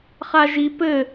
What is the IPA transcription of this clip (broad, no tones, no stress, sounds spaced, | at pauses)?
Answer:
χ a ʒ i p ɘ